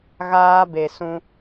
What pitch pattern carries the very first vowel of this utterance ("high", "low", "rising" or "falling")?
high